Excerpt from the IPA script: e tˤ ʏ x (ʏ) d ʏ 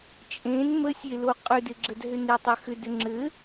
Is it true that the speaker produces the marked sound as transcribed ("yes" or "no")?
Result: yes